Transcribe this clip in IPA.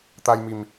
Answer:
t̪ a˧ j m i˨˩ m

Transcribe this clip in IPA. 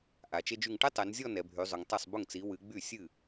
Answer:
ʔ a˨˦ t͡ʃ e˥ d͡ʒ y˥˧ ŋ ʈ ɪ˥ tˤ ɛ˨˦ n zʲ ɔ˥˧ n ɛ˨˦ bʱ y˨˦ zˤ ʊ˨˦ ŋ tˤ e˥˩ sˤ b ʊ˥˩ ŋ t͡s i˨˦ w ɨ˨˦ ɡ͡b y˥˩ sʲ ɨ˥˩

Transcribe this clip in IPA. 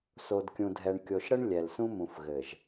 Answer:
s o˨ d kʲ ũ˨ dʱ ɛ˨ ɳ kʲ o˨ ʃ ɽ ə˦ ɳ lʲ ɛ˨ l s ũ˦ m ũ˨ f ɣ ɘ˨ ʒ

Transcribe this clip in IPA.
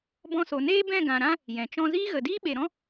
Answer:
b ɔ̃˧ s o˨ n eː˦ b ɛ̃˦˨ ɡ ã˨ ɾ ã˦ | j ɛ̃˨ t͡ʃ ɔ̃˦ z iː˦ ɣ ə˨ d iː˦ ɓ e˨ ɾ ɔ̃˦

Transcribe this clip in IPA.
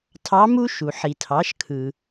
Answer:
tʰ ɑ˧˥ m u˥ ʃ u˩ ħ i˩ tʰ ɑ˩˧ ʃ kʰ ɯ˩

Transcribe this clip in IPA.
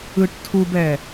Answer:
ɯ ʈ tʰ u b ɛ

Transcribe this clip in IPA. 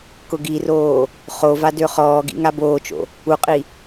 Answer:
k ʊ ɡ i r oː | χ o v a d ø χ ɔː ɡ ḭ ŋ a b oː t͡ʃ o̰ | u qʼ i

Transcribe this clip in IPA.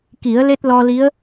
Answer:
k i˨˩˦ ə̯ l e˦˥ t̚ l ɔ˧ l i˧˥ ə̯

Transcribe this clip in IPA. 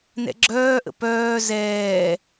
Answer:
n ɛ̰ ɡ͡ǁ œː ʔ ə̰ p œː z ɛː

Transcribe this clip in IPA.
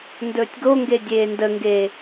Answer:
n d ɵː tʲ ɡ o ŋ ɡ e dʲ eː n d ə ŋ ɡ eː

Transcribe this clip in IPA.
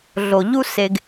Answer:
ɮ o˨ ʎ u˦ s e˧ ɡ

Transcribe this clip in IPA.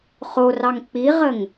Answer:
χ o r ɑ ŋ k͡p i ʁ ə ŋ

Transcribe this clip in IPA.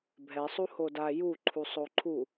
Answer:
bʱ ɛ sˤ u h o d a j u ǃʰ u sˤ o ǃʰ u

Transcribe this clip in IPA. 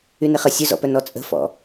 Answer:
y n ɪ χ ə sʲ ɵ z ɔ̰ p œ n ɔ t͡sʼ ə̤ f ɔ̰

